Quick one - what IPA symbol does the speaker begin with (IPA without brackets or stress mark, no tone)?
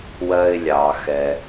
w